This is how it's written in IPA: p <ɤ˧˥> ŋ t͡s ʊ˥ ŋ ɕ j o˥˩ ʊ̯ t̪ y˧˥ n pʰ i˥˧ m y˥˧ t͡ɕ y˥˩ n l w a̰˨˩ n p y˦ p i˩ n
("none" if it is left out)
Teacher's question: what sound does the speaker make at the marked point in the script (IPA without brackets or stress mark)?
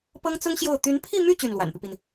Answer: ɤ˥